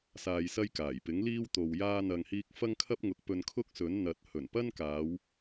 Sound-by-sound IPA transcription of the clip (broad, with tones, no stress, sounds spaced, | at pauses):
s aː˧ j s ɐ˥ j k aː˨˩ j p ɪ˨˥ ŋ l iː˥ w t̪ o˨ w j aː˧ n̪ ɐ˨ ŋ h iː˧ k̚ f ɐ˥ ŋ kʰ ɐ˥ p̚ ŋ ʊ˨˥ k̚ p ɵ˧ n kʰ ʊ˥ k̚ s ɵ˨˥ n n̪ ɐ˨ t̚ h ɵ˨˩ n p ɐ˥ n k aː˨˧ w